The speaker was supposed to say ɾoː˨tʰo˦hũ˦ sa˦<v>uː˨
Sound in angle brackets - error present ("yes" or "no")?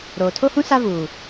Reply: no